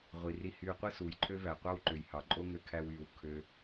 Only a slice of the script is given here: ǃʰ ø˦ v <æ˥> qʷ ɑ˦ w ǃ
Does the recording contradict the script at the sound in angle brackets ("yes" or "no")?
yes